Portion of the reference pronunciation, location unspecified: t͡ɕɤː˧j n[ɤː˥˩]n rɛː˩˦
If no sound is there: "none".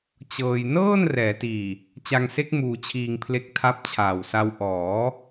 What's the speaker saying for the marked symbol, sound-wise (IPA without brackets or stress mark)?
ɤː˥˩